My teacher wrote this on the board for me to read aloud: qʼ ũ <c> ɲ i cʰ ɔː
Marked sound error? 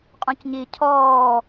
no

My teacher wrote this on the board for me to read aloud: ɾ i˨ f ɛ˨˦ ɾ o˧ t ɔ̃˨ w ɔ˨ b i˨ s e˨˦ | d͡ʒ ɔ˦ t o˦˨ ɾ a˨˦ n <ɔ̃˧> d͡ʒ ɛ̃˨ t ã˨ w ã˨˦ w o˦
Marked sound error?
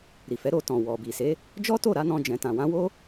no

